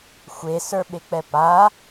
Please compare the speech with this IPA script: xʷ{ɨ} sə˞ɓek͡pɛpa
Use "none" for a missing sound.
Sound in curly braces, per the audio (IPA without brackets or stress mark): e